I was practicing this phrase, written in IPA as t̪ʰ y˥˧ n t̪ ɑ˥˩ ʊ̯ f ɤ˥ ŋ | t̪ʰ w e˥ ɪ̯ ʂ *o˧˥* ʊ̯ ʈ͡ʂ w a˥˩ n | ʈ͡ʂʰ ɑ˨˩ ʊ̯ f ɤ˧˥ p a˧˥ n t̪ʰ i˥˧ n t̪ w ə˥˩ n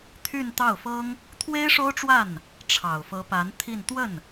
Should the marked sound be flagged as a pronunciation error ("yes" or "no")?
yes